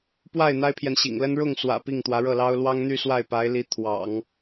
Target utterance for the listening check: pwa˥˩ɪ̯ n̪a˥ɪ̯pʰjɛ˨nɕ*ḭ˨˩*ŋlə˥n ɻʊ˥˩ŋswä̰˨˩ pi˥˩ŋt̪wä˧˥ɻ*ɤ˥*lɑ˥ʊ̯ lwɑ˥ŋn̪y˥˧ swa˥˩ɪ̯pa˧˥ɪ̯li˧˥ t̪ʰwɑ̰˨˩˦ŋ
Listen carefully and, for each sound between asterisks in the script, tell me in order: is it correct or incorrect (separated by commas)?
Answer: correct, incorrect